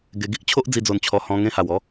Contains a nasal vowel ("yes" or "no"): yes